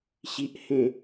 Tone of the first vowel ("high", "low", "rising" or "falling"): low